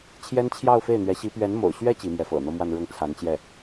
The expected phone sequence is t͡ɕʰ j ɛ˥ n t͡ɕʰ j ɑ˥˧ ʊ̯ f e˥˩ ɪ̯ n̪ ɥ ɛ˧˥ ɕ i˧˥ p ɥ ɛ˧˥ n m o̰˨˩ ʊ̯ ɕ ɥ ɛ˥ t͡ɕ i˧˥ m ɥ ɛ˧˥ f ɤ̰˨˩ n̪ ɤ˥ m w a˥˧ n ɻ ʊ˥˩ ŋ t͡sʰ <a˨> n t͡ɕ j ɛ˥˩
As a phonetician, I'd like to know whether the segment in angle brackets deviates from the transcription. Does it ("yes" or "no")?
yes